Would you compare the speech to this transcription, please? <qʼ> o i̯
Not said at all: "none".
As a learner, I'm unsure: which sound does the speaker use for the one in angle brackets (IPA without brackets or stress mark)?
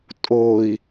tʼ